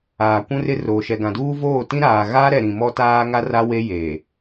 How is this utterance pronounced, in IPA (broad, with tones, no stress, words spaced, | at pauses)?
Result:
aː˨kʷũ˦rɪ˦roː˨ ʃɛ˨ɡã˨duː˦ voː˦˨tĩ˦ ɾaː˨ɣaː˦ɾɛ˨ ɾĩ˨mɔ˦taː˦ ŋa˦ra˦ we˦je˨